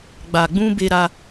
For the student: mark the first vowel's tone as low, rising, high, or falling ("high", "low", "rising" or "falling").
low